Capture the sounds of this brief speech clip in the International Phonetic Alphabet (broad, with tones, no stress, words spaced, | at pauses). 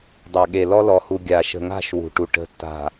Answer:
dˤa˨ɠe˨ lɔ˦lɔ˨hu˨ ɡʲa˨ ʃə̤˨ŋa̤˦˨ʃ wṳ˨ʈu˨ ʈə̤˨tːa̤˨